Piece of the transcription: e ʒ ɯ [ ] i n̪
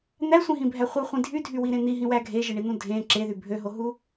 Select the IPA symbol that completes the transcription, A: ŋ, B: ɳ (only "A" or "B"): B